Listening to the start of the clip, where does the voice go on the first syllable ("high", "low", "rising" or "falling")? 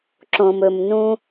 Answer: low